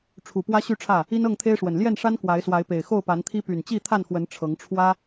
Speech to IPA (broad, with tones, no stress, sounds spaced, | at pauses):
ʈ͡ʂʰ u˨˩ p w ä˦ ɕ y˥˨ ʈ͡ʂʰ ä˥˨ | i˦ n ɤ˥˨ ŋ t̪ʰ e˦ ɪ̯ ʂ w ə˨˩ n l j ɛ˥˨ n ʂ a˦ n k w a˨˦ ɪ̯ s w a˨˦ ɪ̯ p e˨˩ ɪ̯ x o˥˨ ʊ̯ p a˨˦ n t̪ʰ i˦ p y˨˩ n t͡ɕ i˥˨ t̪ʰ a˥˨ n x w ə˨˦ n ʈ͡ʂʰ ɤ˨˦ ŋ ʈ͡ʂʰ w ä˦